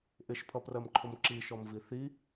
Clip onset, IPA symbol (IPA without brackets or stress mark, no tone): ʔ